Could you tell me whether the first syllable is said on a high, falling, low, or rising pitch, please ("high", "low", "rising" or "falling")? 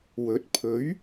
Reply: rising